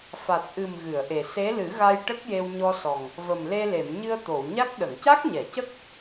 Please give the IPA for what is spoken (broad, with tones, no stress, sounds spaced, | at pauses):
f a˨˩ t̚ ʔ ɨ˨˩ m ɣ ɨ˨˩˨ ə̯ ʔ e˨˩ s e˧˥ l ɨ˨˩˦ ɣ a˧ j ʈ ə˦˥ k̚ j e˧ w ɲ ɔ˧ s ɔ˨˩ ŋ | v ə˨˩ m l e˧ l e˨˩˨ m ɲ ɨ˧ ə̯ t̪ o˨˩˨ w ɲ a˦˥ k̚ ɗ ə˨˩˨ ŋ c a˦˥ k̚ ɲ ɛ˨˩˨ c ə˦˥ k̚